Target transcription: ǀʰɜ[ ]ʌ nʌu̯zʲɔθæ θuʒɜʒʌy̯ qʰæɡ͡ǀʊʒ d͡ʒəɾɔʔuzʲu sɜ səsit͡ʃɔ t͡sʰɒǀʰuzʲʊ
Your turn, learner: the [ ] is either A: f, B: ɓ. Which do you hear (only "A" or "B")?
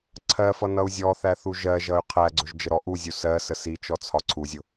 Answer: A